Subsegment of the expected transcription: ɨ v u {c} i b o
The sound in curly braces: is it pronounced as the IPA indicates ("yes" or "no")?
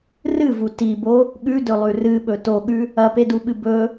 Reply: no